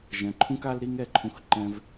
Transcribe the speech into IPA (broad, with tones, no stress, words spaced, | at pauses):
ʒɛ̃˧ǃʰũ˥k a˥lɾi˥ŋ ɛ˥ǃʰũ˥xǃɛ̃˥v